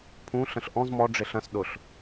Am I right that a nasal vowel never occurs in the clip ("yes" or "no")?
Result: no